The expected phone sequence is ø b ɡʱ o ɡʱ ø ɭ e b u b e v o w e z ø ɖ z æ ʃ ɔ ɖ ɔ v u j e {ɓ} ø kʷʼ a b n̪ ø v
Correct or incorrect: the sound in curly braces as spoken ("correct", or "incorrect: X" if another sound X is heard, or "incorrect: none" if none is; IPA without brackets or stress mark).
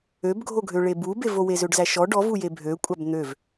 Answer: incorrect: bʱ